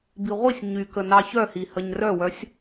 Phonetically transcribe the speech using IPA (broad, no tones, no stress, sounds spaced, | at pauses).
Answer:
b i ʁʷ i sʲ ɲ y k ə n ɑ ç œ h i h ə ɲ r œ w œ sʲ